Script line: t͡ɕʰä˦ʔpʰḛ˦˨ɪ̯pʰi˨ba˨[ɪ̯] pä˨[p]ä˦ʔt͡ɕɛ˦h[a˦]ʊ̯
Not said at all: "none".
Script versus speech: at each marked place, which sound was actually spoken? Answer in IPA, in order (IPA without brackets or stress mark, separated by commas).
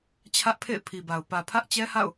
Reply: ʊ̯, pʰ, a̰˦˨